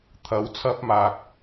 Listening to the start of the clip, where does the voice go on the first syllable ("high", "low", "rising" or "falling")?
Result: rising